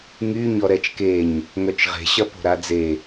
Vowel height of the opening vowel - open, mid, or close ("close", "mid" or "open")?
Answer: close